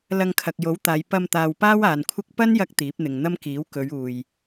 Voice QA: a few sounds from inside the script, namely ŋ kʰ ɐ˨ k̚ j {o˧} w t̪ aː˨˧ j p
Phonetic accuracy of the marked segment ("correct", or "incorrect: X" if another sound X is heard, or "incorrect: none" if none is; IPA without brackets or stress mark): incorrect: o˨˥